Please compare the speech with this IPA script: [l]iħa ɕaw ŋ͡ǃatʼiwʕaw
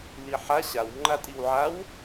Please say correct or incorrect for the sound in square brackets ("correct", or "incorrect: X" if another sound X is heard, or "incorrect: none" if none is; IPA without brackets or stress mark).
correct